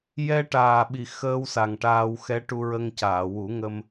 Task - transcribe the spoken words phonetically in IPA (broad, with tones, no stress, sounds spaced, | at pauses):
j ɛ˧ ʈ aː˨˩ ɓ i˨˩ x əː˧ w s a˨˩ ŋ ʈ aː˧ w x ɛ˧˥ ʈ u˧ ɹ ə˧ ŋ c aː˨˩˨ w u˨˩˦ ŋ ə˧ m